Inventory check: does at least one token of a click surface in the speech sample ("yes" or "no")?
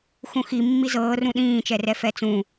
no